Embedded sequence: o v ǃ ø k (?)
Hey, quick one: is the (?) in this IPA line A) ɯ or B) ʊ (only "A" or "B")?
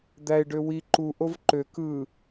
A